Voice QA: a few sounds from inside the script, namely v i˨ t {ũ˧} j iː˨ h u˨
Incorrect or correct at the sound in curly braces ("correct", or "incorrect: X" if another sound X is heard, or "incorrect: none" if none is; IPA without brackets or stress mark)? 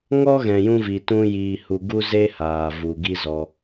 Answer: correct